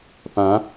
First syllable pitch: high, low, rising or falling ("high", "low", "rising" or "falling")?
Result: rising